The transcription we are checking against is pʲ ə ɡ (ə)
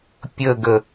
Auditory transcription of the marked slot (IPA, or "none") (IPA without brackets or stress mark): ə